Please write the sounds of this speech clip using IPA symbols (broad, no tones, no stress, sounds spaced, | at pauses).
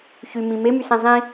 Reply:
ç y m ĩ m e m y s ẽ zˤ ĩ